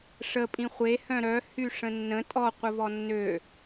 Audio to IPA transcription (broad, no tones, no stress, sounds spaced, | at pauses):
ʂ ə pʼ ĩ χʷ e h œ̃ ɾ œ h y ʂ ə̃ nː ə̃ tʼ ɔ qʷ ə v ɔ nː ø